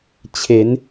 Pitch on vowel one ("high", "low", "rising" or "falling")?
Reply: rising